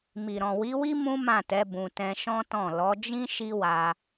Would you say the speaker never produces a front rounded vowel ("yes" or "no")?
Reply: yes